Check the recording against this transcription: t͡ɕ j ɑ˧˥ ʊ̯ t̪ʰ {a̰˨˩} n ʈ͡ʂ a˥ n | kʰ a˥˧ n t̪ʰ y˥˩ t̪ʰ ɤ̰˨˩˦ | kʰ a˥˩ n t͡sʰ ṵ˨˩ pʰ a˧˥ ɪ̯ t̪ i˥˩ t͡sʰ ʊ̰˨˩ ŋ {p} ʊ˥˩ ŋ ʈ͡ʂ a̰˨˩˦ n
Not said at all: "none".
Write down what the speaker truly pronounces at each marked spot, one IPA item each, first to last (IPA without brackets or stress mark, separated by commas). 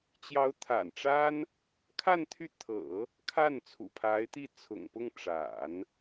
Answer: a̰˨˩, p